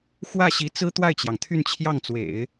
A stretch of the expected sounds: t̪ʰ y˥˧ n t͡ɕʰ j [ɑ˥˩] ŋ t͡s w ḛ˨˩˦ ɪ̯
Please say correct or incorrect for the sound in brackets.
correct